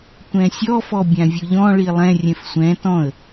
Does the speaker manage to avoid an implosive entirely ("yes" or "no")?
yes